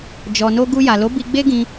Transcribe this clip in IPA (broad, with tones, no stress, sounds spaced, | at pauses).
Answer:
d͡ʒ ɔ˨ n o˧ ɡ u˧ j a˨ l o˨˦ b i˧ ɡ͡b e˦ ɡ ĩ˧